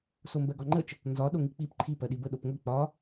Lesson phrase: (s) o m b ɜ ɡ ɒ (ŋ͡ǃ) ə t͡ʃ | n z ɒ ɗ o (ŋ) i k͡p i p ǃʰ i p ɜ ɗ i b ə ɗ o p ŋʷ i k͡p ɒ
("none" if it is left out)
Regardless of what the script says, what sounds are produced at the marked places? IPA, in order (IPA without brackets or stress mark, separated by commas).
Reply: s, ŋ͡ǃ, ŋ